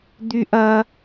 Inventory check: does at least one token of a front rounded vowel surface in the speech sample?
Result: yes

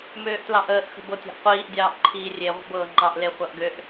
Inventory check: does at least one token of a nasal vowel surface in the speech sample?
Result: no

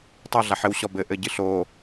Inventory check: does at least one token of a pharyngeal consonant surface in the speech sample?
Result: yes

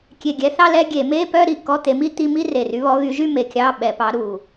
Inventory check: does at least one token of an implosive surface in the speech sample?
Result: yes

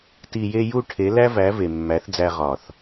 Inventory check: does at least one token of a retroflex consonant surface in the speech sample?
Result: yes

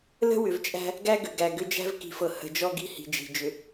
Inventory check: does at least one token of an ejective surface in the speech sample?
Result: yes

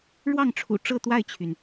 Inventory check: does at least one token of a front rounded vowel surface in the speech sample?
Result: yes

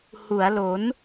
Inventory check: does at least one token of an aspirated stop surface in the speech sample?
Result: no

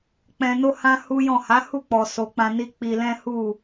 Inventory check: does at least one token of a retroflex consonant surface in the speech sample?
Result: no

